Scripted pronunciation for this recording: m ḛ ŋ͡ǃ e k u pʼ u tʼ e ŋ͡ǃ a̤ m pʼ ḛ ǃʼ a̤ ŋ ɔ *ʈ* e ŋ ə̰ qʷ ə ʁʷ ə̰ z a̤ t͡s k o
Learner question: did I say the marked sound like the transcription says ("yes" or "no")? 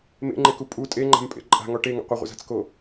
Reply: yes